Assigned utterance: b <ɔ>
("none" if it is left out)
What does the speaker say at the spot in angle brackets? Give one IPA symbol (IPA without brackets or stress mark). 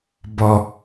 ɔ